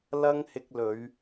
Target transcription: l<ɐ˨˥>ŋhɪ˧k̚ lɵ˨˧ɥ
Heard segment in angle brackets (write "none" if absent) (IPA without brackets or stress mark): ɐ˥